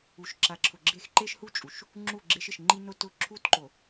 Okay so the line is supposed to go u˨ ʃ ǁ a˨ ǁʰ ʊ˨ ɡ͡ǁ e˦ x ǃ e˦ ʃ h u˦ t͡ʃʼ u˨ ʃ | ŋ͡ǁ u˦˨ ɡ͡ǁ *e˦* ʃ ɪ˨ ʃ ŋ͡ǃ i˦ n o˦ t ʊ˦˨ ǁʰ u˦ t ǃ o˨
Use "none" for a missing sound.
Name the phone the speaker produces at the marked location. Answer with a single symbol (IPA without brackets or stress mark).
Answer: e˦